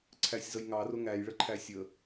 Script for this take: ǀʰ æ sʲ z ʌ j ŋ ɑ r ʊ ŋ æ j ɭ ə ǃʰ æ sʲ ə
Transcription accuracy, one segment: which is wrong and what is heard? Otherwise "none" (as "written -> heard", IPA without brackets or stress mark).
none